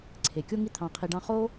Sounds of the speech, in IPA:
ǀʰe˨kʲo˦ŋi˦ t̪ʰɑ̃˧qʰi˧ɖɑ̃˦ χo˦

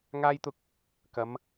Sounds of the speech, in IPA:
ŋaː˧jt̪ʊ˧k̚ | kɐ˨˧m

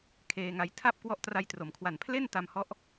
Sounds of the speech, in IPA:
kʰeː˧ŋa˧j tʰa˥˩p̚ kwɔ˦˥ʔtra˧jtro˩˦mkʰwa˨˩n pʰle˥˩n ta˧mhɔ˦˥ʔ

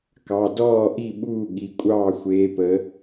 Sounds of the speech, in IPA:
kɑ˩˧˩ dɔː˥˩ʔi˥˩ɓuː˥˩ ɠi˩˧˩kʷʼɑː˥˩xʷeː˧˥pə˧˥

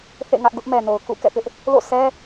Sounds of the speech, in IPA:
θḛ˦˨ŋä˦ʔɡʊ˦ʔ mɛ˨no˨ʊ̯ kṵ˦˨kɛ̰˦˨pɪ˦ʔ | lo̰˦˨sʰɛ˦

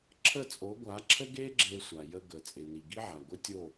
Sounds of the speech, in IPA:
ǁʰə˦˨t͡sʼo˨˦ɡʷa˨˦ǁʰə˦ ɡe˦ ɡ͡ǁe˧ sʷa˨jə˧ɡə˨ t͡sʼɪ˨ni˨ɡi˦ ʕa˨ɡʷɪ˦tʲo˦˨

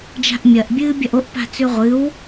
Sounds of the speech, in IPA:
d͡ʒa̤ʔmʲɐʔ bʲɨːbʲɐʔoʔ pa̤t͡sʉʁʷɨw

